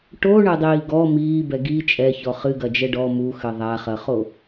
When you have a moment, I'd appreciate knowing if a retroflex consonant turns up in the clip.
yes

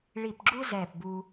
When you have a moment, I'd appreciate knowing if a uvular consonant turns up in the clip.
no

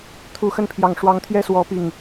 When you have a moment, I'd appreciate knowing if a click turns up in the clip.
no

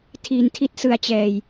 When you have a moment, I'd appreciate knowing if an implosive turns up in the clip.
no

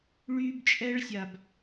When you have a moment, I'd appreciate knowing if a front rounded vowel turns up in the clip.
yes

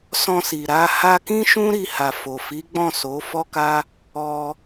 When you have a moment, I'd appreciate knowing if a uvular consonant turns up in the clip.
no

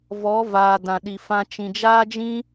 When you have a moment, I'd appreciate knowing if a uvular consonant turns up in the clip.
no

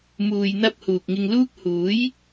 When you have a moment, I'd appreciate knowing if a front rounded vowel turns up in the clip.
no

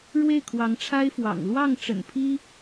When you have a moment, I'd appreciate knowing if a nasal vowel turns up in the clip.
no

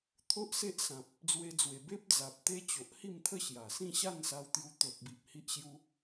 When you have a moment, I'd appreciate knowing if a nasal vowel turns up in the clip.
yes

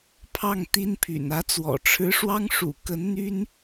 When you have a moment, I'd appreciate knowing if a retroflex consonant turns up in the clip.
yes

